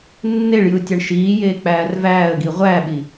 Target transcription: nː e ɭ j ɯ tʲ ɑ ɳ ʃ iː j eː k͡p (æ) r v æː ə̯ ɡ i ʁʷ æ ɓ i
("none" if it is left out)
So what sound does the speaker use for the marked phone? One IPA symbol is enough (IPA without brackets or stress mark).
æː